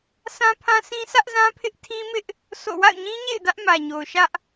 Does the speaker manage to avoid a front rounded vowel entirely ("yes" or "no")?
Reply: yes